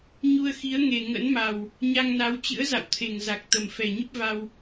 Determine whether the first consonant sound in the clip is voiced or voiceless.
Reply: voiced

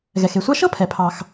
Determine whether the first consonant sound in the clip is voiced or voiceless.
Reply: voiced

